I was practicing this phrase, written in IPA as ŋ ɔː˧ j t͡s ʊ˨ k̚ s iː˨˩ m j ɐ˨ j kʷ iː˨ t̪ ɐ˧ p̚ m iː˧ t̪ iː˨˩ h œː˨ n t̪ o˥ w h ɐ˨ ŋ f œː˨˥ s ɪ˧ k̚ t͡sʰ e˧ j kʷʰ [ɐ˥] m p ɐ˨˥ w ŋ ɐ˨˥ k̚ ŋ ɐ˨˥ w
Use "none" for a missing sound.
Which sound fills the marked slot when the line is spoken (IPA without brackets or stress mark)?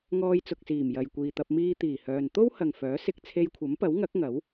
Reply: ɐ˨˥